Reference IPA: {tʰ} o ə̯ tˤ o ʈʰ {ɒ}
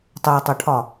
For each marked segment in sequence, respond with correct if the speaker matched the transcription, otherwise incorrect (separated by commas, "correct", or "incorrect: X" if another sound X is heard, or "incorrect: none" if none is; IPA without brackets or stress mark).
incorrect: tˤ, correct